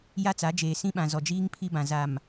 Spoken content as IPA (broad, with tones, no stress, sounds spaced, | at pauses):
j a˦ t͡s a˨˦ d͡ʒ eː˨ s ĩ˦ ɓ ã˨ z ɔ˨ d͡ʒ iː˦ ŋ pʰ i˦ b ã˨ z a˨ m